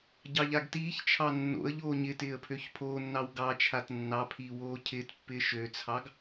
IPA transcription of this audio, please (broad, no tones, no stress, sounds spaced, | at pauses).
ɟ ɑ ʎ a ɡ t iː ç t͡ʃʰ ɑ nː o̰ ə̯ ʎ oː ɲ ɪ t ɪː ə̯ pʰ ø ç pʰ oː nː ɑ w ɡ ɑ t͡ʃʰ a t nː ɑ pʰ iː w oː cʰ ɪː t pː ɪː ʃ ø t͡sʰ ɑ ɡ